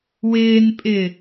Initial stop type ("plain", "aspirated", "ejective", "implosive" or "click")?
ejective